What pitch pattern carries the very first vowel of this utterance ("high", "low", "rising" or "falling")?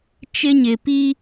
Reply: high